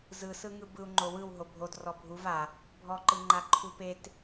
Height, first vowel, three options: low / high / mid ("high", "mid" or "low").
high